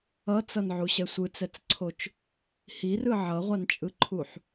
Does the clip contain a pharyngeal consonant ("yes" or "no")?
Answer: yes